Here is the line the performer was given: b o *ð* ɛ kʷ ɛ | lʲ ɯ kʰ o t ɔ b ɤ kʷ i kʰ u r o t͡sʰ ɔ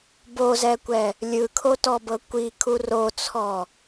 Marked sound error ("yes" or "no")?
yes